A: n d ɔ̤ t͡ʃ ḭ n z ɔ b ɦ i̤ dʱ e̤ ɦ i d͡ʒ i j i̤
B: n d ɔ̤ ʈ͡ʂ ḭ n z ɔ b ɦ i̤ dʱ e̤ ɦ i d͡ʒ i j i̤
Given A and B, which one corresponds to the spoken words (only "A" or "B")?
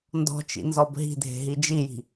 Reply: A